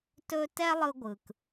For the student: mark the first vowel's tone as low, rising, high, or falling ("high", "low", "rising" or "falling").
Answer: high